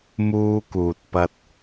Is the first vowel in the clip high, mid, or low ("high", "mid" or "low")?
high